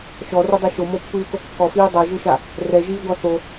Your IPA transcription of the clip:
ʃ ɔ r o dˤ ɛ ʃ o m o pː ɯː k o kː ɔ f iː dˤ ɤ ʒ ɯ ʃ a | r ɛ ʒ iː ɡʷ a θ o

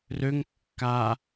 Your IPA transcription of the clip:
r ø ŋ kː a

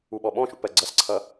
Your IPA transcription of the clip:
u ɓ ɔ ɓ ɔ̃ ʃ ṵ p ɜ ɡ͡ǀ ʌ s ǀʰ ʌ

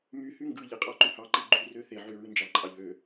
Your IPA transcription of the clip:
m y h y ŋ ɡ ɯ ʎ e qʼ ɑ ǃ y h ɑ ǃ i ɡ͡ǃ y r ø θ e ʕ y ɹ ɯ n d͡ʒ ɑ ǃʼ ɑ ʎ ø

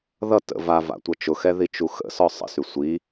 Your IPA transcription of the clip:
ð ʌ t ə̰ v a v a̰ tʷ ʌ t͡ʃ ʊ x ɛ ð i t͡ʃ u x ə̰ s ɔ sˤ ə̰ s y sʷ i

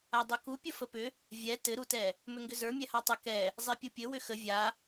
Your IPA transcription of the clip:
a dˤ u k u pʲ ə f ə p ʏ | vʲ ɛ t ɘ ɾ u t ɛ | m ʏ ŋ ɡ ʏ z ə˞ mʲ ɛ h a tˤ ʏ k ɛ | zˤ ɛ pʲ u pʲ ɘ w ʏ x ə vʲ a

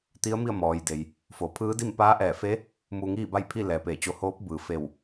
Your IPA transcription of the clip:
t̪ i˧˥ ə̯ m i˥˨ ə̯ m ɔː˩ j d e˩ j | f o˩˧ pʰ ɯː˧˥ d i˥˨ m p aː˧˥ ʔ ɛː˧˩ f e˧˥ | m u˧ ŋ iː˥˨ b a˥˨ j pʰ i˥˨ l ɛː˩˧ p eː˧˩ t͡ɕ o˧ h oː˧˥ p̚ b ɯː˩˧ f e˧˩ w

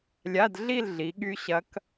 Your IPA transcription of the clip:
lʲ a˧˥˧ d ɮ i˥˧ l ɮ i˨˦ ɠ y˦˥ ɕ ɐ˦˥ k

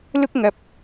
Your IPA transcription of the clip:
l ʊ˥ k̚ ŋ ɐ˨ p̚

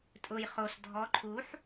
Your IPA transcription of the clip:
tʼ ʊ j χ o s dʱ ɔ ǃʰ u ħ

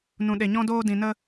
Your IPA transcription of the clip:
n ũ˨ ɗ e˨ ɲ ɔ̃˧ d oː˧ d ĩ˨ n ə˧

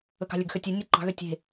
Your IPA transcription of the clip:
ɵ k ɑ̤ lʲ ɵ ɡ x ø tʲ e nʲ ɔ ǃ ɑ̤ ɣ ø tʲ e̤

